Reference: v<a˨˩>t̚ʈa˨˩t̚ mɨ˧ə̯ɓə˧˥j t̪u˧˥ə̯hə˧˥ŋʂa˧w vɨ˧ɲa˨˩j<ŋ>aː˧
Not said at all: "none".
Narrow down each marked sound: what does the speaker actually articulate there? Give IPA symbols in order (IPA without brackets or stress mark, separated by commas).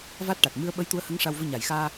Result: a˦˥, x